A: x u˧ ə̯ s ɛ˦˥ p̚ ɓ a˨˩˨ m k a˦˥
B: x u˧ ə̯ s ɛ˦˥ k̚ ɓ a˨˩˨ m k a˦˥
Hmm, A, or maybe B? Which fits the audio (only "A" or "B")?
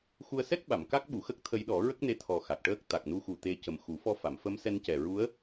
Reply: B